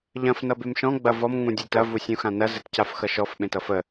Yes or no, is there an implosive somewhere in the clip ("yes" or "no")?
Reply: yes